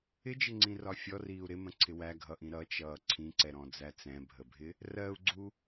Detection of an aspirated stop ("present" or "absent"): present